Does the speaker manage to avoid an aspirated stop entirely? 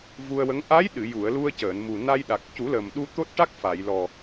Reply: yes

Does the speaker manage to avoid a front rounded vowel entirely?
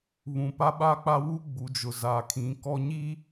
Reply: yes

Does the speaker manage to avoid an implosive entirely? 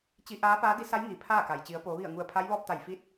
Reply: yes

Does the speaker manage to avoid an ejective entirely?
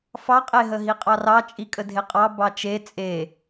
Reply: no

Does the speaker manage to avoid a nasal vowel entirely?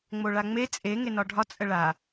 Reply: yes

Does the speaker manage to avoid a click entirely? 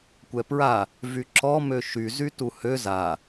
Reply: no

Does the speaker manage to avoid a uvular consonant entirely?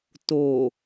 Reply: yes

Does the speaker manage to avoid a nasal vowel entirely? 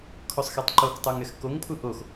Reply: yes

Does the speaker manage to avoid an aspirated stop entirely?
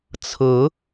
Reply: no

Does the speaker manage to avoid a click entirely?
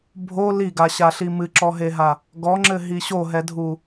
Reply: no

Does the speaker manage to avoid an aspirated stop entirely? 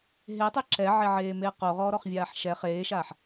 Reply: yes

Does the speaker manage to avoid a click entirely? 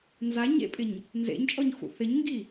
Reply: yes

